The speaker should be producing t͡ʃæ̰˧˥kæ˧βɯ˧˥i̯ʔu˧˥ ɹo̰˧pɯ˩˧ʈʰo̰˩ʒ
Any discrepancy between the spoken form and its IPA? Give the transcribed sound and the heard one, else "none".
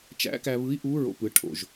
none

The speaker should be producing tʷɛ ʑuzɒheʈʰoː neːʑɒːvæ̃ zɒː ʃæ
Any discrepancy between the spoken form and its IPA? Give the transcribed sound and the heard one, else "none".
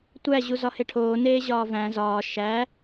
ɛ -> æ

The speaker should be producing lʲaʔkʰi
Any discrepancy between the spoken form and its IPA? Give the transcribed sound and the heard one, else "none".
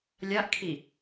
none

